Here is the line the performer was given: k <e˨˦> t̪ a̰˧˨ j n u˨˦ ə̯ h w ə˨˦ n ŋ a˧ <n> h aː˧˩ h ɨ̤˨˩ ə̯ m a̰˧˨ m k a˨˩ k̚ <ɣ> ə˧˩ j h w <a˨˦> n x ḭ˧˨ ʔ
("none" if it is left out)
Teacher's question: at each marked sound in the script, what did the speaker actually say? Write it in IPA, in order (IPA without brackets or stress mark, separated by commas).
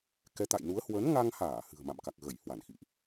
ɛ˨˦, ŋ, ɣ, a˧˩